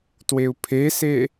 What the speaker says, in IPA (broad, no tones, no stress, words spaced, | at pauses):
tweu̯pʰese